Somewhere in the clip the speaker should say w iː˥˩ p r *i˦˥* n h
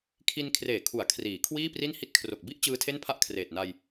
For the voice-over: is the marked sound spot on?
no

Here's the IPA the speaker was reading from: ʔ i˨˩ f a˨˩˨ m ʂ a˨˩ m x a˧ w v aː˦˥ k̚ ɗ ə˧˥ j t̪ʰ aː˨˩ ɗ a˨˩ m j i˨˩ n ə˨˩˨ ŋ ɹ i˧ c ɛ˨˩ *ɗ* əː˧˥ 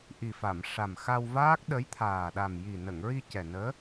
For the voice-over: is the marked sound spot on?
no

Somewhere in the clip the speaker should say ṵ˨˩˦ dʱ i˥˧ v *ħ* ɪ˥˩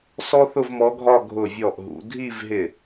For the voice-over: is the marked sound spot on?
no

